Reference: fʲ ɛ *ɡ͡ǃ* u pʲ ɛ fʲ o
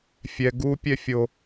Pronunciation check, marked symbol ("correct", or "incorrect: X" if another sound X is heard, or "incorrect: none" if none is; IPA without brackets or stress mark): incorrect: ɡ